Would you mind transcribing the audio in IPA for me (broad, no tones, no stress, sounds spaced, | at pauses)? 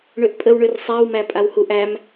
ɳ ø ʔ pʼ ə w ɳ ø r sˤ æ w m æ pʼ a w h u ʔ æ m